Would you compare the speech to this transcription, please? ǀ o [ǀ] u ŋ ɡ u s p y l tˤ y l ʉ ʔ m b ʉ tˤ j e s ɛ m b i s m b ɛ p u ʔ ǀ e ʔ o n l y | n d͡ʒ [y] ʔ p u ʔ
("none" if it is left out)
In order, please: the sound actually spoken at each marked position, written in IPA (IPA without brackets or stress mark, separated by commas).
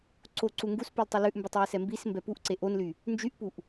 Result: ǀ, y